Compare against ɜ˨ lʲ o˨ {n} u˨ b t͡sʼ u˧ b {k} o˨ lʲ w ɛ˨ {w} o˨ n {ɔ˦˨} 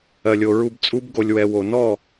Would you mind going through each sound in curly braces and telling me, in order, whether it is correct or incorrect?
incorrect: ɹ, incorrect: ɡ, correct, correct

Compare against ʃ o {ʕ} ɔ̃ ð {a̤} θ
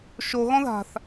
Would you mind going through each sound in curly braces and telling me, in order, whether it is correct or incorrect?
incorrect: ɣ, correct

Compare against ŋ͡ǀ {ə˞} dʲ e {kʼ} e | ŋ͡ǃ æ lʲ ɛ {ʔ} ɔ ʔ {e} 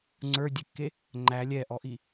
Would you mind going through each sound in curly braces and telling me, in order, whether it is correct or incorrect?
correct, incorrect: kː, correct, incorrect: i

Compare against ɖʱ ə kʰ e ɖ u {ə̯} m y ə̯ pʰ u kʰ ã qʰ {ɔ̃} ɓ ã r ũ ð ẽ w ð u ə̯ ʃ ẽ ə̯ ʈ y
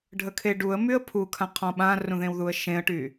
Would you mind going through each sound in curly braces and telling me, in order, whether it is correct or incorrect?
correct, correct

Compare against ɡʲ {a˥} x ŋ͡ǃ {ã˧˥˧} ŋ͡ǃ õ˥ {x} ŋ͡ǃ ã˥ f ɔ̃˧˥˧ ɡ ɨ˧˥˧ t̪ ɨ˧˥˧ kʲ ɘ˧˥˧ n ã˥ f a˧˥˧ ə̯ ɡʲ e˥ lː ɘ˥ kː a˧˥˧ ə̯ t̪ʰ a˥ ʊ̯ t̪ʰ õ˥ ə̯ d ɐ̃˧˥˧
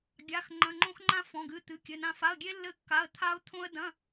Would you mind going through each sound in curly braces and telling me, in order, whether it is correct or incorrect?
incorrect: a˧˥˧, incorrect: ɐ̃˧˥˧, correct

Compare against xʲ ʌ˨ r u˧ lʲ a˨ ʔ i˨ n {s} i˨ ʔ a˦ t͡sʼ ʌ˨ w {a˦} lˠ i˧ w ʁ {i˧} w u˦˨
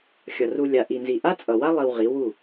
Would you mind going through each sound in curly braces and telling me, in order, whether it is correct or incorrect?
incorrect: z, correct, incorrect: i˨˦

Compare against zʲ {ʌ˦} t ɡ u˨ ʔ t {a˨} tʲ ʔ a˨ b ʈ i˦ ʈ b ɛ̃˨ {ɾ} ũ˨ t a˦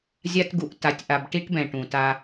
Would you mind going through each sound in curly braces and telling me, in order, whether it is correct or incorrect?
incorrect: a˦, correct, incorrect: ʈ

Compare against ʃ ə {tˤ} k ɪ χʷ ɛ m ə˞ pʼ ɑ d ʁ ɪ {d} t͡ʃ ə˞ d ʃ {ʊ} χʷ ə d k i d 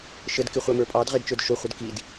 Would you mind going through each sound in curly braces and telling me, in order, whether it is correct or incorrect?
incorrect: d, correct, correct

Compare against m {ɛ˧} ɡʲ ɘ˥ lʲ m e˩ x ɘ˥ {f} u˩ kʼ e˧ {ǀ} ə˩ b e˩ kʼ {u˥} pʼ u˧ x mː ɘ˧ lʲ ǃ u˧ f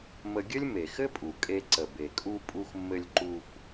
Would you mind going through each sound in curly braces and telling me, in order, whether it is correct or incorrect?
incorrect: ə˧, incorrect: pʼ, correct, incorrect: u˧

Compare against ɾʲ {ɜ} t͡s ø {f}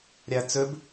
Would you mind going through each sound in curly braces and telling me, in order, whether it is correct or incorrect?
incorrect: æ, incorrect: b

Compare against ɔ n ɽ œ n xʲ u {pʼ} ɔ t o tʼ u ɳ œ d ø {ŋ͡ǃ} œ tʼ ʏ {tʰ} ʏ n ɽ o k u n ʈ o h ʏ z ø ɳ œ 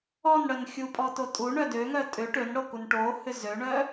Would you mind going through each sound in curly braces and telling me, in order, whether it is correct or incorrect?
correct, incorrect: ŋ, incorrect: ʈ

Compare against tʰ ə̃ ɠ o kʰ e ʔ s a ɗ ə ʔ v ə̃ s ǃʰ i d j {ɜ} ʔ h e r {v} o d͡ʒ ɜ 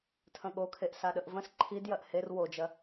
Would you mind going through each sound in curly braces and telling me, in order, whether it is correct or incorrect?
correct, incorrect: w

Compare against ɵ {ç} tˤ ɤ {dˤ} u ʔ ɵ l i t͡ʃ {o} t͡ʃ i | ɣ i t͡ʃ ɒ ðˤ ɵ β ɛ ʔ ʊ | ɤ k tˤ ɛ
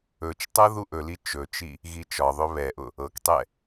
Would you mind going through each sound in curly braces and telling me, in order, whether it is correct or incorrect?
incorrect: t͡ʃ, incorrect: ð, incorrect: ɵ

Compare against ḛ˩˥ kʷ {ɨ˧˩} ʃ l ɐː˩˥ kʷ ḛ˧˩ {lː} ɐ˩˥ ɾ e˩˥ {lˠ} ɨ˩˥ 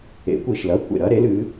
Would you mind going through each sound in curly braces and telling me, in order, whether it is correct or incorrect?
incorrect: i˧˩, incorrect: ɾ, incorrect: l

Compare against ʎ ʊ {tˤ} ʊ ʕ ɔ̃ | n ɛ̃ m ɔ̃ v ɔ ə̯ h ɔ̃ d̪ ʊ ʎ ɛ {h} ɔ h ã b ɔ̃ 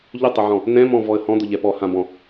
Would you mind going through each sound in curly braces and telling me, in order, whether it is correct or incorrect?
correct, incorrect: p

